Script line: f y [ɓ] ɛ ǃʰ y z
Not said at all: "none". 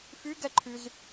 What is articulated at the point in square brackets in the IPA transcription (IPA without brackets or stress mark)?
ɡ